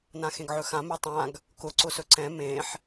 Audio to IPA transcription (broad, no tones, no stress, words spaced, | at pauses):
nãxẽɡʕɵxã mɛtˤãɡ | kʊ ǀʊsɵǀɛ̃ mẽħ